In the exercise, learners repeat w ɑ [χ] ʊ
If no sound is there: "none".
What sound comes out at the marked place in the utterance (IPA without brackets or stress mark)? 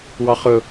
χ